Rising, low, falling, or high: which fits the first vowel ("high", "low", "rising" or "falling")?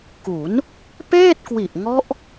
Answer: rising